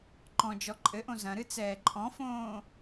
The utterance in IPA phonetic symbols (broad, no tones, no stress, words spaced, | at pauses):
ǃɔ̃d͡ʒɔ ǃʼɘʔõ zɐ̃ ɾɨt͡sɛːǃʼɔ̃fõː